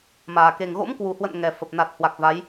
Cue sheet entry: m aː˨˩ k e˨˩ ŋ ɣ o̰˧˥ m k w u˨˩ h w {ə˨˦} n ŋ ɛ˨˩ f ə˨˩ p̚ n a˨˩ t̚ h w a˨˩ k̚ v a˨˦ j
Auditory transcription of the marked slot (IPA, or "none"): ə̰˧˨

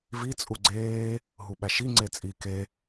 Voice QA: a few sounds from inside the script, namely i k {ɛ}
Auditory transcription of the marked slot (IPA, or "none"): e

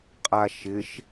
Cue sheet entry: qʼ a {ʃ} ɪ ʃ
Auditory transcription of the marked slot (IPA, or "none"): ʃ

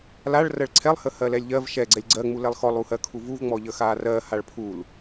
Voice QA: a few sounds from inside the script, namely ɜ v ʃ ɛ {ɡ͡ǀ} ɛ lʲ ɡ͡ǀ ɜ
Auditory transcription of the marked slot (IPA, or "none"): ɡ͡ǀ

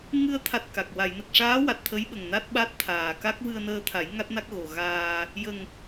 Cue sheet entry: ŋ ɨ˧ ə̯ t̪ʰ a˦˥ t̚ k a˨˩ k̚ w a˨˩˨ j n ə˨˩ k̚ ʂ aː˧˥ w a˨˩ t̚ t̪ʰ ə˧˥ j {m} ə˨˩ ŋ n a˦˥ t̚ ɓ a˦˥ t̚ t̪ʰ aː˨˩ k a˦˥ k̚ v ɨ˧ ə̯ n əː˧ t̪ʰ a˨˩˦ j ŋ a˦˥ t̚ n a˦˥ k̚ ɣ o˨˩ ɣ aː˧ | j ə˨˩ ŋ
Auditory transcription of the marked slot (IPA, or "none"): ɓ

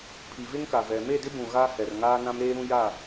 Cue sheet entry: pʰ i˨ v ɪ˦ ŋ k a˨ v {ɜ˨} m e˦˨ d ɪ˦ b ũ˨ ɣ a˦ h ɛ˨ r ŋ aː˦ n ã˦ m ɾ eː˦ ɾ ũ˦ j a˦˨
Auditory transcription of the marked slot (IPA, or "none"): ɛ˨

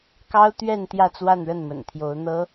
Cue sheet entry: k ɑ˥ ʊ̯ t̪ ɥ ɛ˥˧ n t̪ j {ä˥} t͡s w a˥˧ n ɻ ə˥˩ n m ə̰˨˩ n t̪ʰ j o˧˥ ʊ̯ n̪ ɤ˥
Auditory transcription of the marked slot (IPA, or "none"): ä˥˧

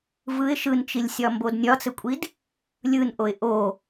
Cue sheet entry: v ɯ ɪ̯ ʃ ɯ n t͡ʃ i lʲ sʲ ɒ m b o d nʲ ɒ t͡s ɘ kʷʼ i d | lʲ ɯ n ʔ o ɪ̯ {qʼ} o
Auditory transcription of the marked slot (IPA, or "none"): ʔ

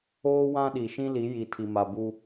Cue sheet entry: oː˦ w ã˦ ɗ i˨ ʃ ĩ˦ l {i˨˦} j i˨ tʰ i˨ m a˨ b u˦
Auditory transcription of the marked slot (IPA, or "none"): i˨˦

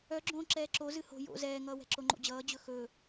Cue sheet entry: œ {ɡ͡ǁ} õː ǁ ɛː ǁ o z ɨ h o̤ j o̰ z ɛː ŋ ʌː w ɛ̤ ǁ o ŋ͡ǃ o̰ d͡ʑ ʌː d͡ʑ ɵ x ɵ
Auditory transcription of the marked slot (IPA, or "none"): ɡ͡ǁ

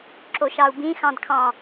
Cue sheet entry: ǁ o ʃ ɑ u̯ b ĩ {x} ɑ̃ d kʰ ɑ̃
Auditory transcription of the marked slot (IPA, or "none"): x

